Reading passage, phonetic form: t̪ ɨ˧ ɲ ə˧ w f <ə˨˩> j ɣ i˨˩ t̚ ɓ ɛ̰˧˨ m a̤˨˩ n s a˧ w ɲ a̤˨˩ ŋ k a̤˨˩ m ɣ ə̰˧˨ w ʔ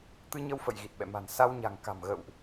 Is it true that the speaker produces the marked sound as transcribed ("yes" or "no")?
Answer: no